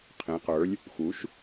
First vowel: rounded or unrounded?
unrounded